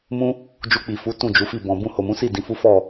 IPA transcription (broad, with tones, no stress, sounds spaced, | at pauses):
m ũ˦ | d͡ʒ u˧ k͡p i˨ f u˨˦ t ũ˦˨ d͡ʒ u˨˦ f i˦˨ b ɔ̃˨ b ũ˧ h o˨ m ũ˨˦ s i˦˨ d ĩ˨˦ f u˦ f ɔ˦˨